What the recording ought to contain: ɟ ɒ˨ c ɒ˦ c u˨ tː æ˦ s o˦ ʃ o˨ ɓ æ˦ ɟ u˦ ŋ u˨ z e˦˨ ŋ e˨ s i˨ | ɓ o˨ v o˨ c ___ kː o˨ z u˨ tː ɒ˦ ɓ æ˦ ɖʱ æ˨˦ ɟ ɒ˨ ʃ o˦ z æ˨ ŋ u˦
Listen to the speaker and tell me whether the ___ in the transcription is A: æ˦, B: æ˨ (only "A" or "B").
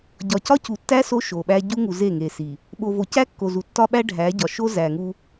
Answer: A